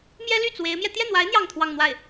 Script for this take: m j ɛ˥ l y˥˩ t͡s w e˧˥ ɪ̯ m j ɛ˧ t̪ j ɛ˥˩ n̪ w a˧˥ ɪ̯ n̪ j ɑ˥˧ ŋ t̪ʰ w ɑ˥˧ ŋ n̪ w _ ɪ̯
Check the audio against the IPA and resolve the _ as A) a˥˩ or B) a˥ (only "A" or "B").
A